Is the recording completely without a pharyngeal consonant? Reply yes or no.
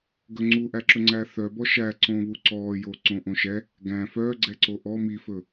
yes